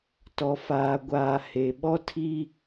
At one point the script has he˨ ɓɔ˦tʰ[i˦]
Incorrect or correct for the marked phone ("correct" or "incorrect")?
correct